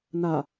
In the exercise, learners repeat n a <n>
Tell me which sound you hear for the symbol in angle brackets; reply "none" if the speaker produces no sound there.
none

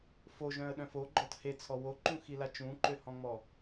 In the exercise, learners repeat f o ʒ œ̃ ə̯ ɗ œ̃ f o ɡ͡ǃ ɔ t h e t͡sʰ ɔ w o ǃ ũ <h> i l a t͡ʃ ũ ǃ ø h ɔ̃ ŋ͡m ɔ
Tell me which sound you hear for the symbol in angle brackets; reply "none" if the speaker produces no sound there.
x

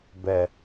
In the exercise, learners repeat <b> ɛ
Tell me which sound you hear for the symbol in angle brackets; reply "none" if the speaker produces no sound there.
b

